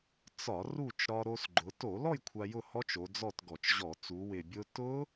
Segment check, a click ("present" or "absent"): present